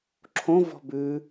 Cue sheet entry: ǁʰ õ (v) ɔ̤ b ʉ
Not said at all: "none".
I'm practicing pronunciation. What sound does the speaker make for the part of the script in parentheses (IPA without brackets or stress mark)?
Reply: v